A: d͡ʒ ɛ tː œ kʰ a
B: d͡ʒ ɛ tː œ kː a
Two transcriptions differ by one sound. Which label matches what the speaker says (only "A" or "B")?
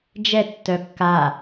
B